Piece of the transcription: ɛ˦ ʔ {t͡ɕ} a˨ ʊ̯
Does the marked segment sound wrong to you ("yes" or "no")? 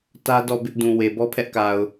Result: yes